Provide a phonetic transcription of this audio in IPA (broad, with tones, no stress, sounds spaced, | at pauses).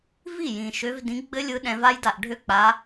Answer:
v i˥˩ j ĩ˨˩ ʃ ø˨˦ v d ĩ˨˦ ɡ͡b ɘ˦˥ lʲ ɯ˨˦ ɗ ɛ̃˨˦ v a˦˥ j d a˨˩ ʔ ɖʱ ø˥˧ k͡p a˨˦